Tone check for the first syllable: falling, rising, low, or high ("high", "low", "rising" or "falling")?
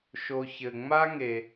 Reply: low